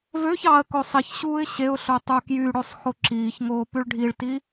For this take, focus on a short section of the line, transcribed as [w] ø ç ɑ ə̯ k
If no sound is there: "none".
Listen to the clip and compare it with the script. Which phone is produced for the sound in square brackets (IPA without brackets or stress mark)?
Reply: v